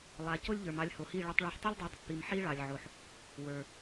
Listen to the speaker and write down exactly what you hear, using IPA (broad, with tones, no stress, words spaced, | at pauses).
lˠa˨ co˦lʲʎə˞˨m ɑ˧lʲho˨hi˦˨ ɭa˧tˤɭɑ˧ħ tˤo˦lʲdˤa˨˦tˤpːi˨m ħi˦ɭɑ˨lʲʕo˨ħ | wə˞˨